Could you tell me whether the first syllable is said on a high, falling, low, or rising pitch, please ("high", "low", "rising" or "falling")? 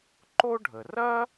high